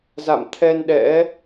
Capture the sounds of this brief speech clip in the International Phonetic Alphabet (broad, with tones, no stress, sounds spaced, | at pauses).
z a̰˧˨ m t̪ʰ ɛ˧ n ɗ ɛ̰˧˥